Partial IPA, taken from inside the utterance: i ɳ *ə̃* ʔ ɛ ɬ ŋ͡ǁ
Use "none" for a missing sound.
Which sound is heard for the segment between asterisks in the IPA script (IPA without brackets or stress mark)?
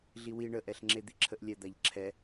ə